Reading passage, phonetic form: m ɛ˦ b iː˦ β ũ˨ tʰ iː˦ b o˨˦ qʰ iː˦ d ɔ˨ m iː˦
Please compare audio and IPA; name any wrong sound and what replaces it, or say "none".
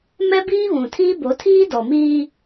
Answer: qʰ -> tʰ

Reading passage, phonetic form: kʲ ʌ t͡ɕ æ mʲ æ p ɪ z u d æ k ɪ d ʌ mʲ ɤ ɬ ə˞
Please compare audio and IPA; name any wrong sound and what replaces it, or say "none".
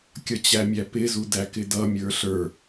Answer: ɤ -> ə˞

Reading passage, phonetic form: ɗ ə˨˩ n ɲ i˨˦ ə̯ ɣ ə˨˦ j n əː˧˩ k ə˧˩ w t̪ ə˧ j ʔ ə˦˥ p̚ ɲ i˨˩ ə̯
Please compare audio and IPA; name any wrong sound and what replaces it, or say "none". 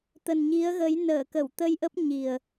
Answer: ɗ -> t̪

